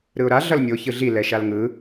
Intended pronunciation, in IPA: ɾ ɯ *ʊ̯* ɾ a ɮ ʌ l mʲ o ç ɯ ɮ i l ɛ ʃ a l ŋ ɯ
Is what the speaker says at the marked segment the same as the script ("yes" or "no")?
yes